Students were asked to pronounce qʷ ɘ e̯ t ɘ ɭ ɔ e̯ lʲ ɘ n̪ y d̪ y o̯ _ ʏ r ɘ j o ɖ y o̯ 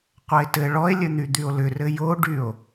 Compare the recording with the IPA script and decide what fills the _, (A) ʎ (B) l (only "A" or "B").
B